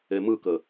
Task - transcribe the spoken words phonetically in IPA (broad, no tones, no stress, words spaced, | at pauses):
emɯkə